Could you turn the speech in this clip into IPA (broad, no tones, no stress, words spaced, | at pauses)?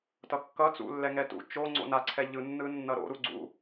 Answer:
tʌkːʌt͡sṵ lːɛŋɛtṵ t͡ʃo ŋ͡ǀo̰naǀʰɛ ʎɯnːɯ nːʌɾo̰ ɾuɡ͡ǀṵ